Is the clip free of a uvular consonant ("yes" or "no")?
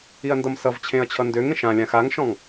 yes